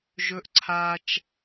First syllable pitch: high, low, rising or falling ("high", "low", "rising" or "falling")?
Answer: high